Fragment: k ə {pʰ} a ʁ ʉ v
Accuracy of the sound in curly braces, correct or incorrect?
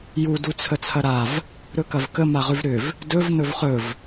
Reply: incorrect